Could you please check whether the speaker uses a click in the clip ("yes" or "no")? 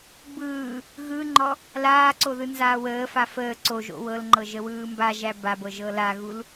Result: yes